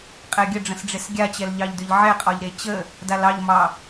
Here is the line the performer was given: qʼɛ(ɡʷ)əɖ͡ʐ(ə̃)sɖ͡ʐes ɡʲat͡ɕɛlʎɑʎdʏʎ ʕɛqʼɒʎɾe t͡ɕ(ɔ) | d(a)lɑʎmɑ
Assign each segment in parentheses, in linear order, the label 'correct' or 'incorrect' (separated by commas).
incorrect, correct, incorrect, correct